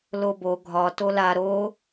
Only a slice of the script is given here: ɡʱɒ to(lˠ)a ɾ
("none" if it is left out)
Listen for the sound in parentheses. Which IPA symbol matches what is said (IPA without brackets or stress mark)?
l